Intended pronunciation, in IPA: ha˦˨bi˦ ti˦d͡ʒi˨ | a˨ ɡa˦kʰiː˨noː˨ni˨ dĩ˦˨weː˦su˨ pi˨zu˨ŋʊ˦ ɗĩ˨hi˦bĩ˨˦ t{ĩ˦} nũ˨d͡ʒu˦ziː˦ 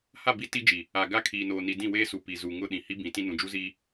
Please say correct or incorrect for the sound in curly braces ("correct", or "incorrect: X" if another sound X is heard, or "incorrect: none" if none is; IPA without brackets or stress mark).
correct